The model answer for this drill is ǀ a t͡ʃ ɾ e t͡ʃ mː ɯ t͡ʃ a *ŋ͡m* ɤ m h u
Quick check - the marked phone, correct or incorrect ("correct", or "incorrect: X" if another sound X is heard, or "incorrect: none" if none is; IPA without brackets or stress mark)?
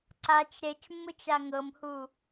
incorrect: ŋ